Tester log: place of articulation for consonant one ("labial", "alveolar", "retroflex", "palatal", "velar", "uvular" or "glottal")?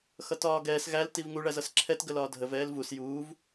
velar